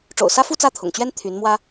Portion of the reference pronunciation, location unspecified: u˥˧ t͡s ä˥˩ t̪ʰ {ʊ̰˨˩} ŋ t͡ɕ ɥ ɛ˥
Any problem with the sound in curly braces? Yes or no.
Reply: no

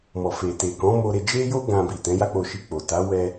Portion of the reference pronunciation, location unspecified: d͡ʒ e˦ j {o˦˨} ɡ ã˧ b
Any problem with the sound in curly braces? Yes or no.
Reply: yes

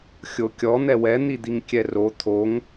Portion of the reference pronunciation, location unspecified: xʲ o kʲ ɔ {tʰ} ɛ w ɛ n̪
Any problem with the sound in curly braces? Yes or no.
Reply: yes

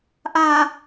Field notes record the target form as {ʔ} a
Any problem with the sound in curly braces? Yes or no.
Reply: no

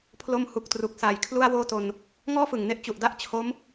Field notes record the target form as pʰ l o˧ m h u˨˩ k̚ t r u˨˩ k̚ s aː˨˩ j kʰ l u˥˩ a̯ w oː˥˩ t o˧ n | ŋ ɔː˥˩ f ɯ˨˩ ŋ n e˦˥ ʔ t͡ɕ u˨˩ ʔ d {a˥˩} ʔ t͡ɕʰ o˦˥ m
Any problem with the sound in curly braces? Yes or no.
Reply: no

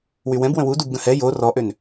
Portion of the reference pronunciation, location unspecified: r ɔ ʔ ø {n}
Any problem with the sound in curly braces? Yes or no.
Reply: no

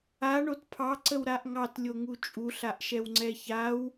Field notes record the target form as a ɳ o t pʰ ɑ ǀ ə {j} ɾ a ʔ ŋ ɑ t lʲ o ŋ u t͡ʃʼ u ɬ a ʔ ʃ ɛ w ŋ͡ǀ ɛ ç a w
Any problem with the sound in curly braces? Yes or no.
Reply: yes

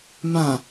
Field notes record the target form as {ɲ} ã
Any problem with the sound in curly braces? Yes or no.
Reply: yes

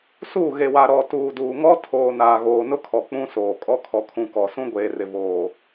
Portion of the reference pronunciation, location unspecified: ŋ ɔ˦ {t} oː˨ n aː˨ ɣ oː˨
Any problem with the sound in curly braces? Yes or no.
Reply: yes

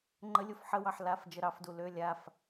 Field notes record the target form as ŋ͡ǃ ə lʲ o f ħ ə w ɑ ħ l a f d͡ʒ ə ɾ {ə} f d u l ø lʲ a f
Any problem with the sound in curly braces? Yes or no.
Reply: yes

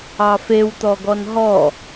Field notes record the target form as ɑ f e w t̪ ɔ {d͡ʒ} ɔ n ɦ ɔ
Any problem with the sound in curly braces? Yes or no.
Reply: yes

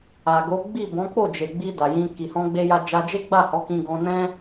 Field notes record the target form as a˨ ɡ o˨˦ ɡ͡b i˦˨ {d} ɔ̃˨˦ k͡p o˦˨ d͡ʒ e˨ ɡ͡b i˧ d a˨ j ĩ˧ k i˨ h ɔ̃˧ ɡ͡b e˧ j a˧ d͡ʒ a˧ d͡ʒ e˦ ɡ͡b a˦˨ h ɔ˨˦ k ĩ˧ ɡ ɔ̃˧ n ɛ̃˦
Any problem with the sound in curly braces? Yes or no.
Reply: yes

